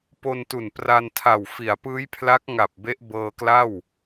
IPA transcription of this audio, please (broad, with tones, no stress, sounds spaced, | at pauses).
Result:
p o˧ n t u˨˩ n p r a˧ n tʰ a˨˩ w f i˩˦ a̯ p ɯː˦˥ j pʰ l a˦˥ k̚ ŋ a˨˩ p̚ b e˦˥ ʔ b ɤː˧ k l a˥˩ w